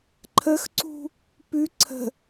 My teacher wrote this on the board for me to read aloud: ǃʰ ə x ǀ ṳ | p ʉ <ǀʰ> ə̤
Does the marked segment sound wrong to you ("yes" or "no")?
no